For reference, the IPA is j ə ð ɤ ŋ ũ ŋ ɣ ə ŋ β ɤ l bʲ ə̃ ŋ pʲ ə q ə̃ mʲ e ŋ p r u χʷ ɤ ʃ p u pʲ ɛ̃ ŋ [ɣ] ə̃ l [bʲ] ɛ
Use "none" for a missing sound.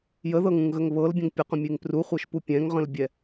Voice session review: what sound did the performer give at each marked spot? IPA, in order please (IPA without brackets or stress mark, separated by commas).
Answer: ʁ, bʲ